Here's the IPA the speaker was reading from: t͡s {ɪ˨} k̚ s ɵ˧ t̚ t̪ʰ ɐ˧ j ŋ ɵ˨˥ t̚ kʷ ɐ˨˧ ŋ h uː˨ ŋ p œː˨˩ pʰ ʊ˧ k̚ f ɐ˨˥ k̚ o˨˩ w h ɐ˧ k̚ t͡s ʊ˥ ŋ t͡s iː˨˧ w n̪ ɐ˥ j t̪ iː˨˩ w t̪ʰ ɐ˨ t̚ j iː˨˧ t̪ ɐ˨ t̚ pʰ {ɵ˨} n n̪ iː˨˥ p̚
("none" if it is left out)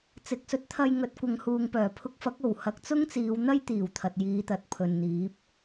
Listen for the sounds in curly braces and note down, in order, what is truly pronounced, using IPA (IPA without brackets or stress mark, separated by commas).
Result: ɪ˨, ɵ˨